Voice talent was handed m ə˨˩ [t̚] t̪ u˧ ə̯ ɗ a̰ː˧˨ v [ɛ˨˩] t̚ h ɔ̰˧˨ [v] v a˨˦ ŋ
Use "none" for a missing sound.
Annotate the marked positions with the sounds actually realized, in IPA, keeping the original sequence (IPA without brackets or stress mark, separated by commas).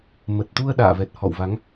t̚, ɛ˨˩, w